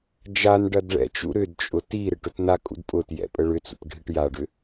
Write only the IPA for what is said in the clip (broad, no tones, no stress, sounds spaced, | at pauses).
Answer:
d͡ʒ a n ɖ ɐ d ɭ ɛ̰ t͡ʃ ṵ ɾ ʏ d t͡ʃʼ ʊ t i ɾ ɪ ʈ ʊ t n a kʼ ṵ d pʼ ʊ t j ɛ̰ pʼ ə ɭ ʏ t͡s ṵ t ɖʱ i ʈ j a ɖ ʏ